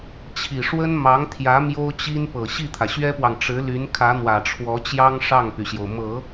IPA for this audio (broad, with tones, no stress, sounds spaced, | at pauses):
t͡ɕʰ i˨˩ ʂ w ə˥ n m ɑ˧˥ ŋ t̪ʰ j ä˧˥ m j o˥ ʊ̯ t͡ɕ i˥ n p ɤ˨˩ ɕ i˥˩ t̪ʰ ä˩ ɕ ɥ ɛ˥ p w ɑ˨ ŋ ʈ͡ʂ ɻ̩˧˥ l y˧˥ n kʰ ä˧˥ n̪ w ä˨˩ ʈ͡ʂʰ w ɔ˧˥ t͡ɕ j ɑ˥ ŋ ʂ ɑ˥˩ ŋ p y˩ ɕ j o˩ ʊ̯ m ɤ˨˩˦